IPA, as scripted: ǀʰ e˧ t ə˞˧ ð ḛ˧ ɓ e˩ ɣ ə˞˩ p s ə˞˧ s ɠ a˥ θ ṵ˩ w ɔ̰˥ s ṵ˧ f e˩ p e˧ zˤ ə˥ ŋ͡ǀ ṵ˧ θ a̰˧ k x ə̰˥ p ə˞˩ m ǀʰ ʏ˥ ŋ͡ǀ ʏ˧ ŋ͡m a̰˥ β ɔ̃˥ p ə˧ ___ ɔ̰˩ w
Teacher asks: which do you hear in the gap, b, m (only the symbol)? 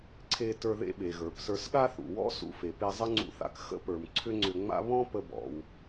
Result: b